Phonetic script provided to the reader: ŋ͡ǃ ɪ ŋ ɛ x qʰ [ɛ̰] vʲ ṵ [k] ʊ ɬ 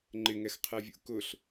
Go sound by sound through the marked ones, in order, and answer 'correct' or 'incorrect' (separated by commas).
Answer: incorrect, correct